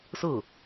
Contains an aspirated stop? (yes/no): no